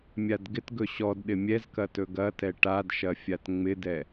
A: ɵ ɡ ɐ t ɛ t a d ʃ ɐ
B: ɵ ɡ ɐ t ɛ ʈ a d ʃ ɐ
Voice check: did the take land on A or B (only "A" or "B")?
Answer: B